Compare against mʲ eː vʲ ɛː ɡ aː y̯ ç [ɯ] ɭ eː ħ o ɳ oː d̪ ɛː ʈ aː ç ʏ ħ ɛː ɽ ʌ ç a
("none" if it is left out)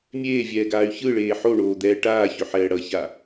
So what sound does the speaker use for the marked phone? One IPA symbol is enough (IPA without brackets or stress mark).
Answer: ɯ